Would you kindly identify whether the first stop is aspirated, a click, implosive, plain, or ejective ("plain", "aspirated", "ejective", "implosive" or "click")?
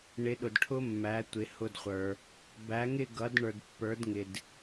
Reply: implosive